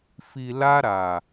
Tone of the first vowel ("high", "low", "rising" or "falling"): low